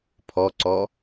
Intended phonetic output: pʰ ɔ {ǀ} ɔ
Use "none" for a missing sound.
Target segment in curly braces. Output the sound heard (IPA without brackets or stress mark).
ǀ